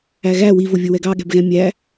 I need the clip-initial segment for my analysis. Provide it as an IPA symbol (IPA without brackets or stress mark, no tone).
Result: æ